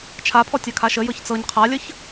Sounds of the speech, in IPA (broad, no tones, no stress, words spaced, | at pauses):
t͡ʃʰapʰɔtʲakʰa ʃəjɤç t͡sɤɲ qʰalʲəç